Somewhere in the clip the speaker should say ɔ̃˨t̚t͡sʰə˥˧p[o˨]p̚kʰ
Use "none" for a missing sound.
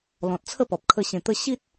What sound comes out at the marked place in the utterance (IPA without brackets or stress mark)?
ɔ˨